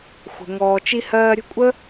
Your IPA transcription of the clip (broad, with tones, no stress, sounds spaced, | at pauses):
xʷ ə̤˨ ŋ ɔː˨ t͡ʃ i˧ h ɜː˧ ɾʲ ə̤˦ kʷʼ ə˦